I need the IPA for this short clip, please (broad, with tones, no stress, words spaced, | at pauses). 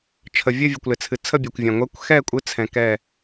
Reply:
t͡ʃʰə˩ vʲɨ˦˨vʲɨ˩kʷlɪ˩t͡sʰɨ˩ t͡sʰə˦˨bʲø˩kʷvʲã˩ ŋʷɛ˨˦kʷxɛ˦˨kʷʼɨ˨˦ t͡sʰɛ̃˨˦kɛ˦˨